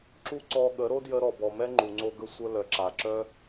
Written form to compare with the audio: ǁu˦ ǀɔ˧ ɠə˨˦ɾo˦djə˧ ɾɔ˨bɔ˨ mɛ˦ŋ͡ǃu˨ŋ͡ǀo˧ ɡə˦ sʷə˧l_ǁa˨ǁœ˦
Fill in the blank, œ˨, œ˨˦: œ˨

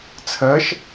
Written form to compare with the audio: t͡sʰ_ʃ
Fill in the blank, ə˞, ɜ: ɜ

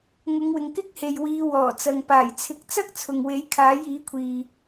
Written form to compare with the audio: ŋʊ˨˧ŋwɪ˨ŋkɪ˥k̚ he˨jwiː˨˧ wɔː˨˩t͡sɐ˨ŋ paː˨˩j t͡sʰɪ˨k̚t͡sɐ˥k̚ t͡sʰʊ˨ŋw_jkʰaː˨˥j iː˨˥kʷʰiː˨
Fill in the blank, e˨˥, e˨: e˨˥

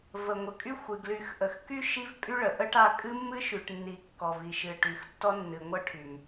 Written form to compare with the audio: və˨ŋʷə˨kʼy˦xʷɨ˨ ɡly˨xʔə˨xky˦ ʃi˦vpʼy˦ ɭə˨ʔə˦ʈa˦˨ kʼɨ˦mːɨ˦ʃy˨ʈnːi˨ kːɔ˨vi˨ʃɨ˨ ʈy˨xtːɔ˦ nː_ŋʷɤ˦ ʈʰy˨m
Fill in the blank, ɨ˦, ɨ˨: ɨ˨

